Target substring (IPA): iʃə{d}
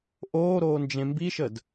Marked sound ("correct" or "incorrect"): correct